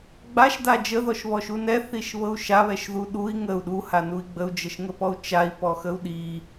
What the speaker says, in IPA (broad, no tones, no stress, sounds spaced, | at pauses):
ɡ͡b a ʃ d a d͡ʒ ə ð ɔ ʃ β ɔ ʃ u n ɛ θ i ʃ β ɤ u̯ ʃ a β ɛ ʃ ð u ɗ u i̯ ŋ ə u̯ ɗ u h a n u i̯ ɡ͡b ə u̯ d͡ʒ ə ʃ ŋ ə p ɔ u̯ t͡ʃ a i̯ p ɔ x ə u̯ ɗ i